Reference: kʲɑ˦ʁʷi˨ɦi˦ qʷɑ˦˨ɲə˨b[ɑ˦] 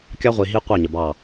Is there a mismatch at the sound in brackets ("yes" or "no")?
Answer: yes